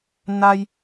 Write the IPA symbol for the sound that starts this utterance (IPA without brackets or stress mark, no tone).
n